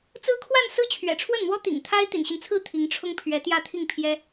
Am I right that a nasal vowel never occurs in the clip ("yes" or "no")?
yes